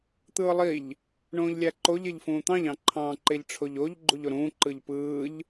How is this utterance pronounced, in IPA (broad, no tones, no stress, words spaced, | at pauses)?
t̪ɯːlˠiʎ | ɳõːʎlʲæǃoʎ eʎfũːt̪ɑ̃ʎ ɑ̃ǃʰɑ̃ ǃeʎʈ͡ʂʰoʎoʎ ɡ͡ǃuʎoɾũː ǃɯʎpɯːʎ